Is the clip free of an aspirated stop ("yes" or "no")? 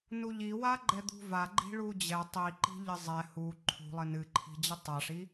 no